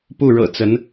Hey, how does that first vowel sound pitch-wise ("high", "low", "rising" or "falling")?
falling